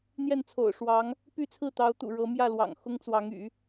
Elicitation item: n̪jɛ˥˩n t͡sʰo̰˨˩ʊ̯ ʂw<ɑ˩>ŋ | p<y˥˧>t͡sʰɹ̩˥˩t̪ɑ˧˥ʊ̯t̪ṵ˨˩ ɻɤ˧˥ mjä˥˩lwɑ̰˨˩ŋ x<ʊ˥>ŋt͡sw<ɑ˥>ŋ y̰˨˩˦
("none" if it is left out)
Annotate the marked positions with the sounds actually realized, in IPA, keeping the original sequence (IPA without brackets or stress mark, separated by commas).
ɑ˧˥, y˥˧, ʊ˥, ɑ˧˥